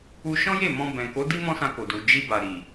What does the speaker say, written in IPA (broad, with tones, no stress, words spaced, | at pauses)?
u˧ʃɔ̃˦je˦˨ mɔ̃˧bɛ̃˨ko˨˦di˦ mɔ̃˦sã˧ko˨du˨ d͡ʒi˧ba˨ ɾi˨